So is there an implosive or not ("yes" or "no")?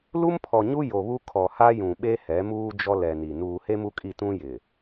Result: yes